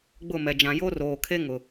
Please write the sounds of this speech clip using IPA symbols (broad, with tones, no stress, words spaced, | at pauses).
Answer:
ɡ͡bʊ˦˨mɛ˨ d͡ʒã˨jo˦roː˨kʰe˦ ŋʊ˨